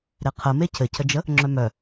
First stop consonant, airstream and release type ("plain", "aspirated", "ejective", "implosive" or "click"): aspirated